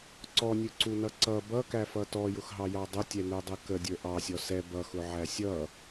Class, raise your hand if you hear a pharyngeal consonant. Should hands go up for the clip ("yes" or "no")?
yes